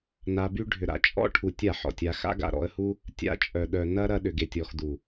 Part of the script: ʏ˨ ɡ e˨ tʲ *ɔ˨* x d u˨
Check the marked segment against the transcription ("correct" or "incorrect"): correct